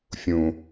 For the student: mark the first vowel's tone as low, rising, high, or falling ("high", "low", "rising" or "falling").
low